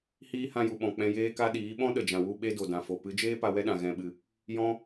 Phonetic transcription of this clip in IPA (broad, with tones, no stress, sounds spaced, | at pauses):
h iː˦ h ã˧ j u˨ ɓ ɔ̃˨ k͡p ɛ̃˧ j eː˦ k a˦ ɗ iː˨˦ ɓ ɔ̃˦ ɗ ə˨ d͡ʒ ã˨ w u˧ ɓ e˦ d o˨ d ã˨ f o˨ p ɨ˨˦ d͡ʒ eː˦ p a˧ w ɛ˦ ɗ ã˨ ɣ ɛ̃˨ ɓ ɨ˨ | j ɔ̃˦